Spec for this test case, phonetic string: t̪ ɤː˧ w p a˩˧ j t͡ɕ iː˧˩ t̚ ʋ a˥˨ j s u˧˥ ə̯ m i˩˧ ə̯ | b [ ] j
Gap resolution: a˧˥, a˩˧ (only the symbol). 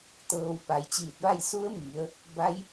a˧˥